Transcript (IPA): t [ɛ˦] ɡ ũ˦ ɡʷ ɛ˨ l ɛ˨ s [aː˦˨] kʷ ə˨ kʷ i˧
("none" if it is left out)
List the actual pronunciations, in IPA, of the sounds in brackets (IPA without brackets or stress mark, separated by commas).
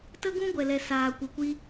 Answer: ə˦, aː˨